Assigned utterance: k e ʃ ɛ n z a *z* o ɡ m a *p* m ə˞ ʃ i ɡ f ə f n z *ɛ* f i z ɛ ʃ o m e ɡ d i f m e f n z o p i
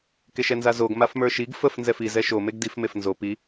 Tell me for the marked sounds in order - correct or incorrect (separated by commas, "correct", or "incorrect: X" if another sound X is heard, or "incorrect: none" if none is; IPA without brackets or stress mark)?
correct, incorrect: f, correct